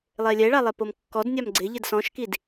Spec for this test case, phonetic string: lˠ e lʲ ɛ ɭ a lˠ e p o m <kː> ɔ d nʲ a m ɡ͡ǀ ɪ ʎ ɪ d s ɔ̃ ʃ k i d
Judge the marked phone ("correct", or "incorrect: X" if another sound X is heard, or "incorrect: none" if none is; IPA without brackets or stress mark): correct